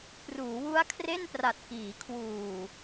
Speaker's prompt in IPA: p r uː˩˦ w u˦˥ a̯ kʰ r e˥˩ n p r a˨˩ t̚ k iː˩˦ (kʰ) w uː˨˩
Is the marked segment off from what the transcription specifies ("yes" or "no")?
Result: no